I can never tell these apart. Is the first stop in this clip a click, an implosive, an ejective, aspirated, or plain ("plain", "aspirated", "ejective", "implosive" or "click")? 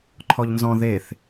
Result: click